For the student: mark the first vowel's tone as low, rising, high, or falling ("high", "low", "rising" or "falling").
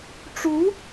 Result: rising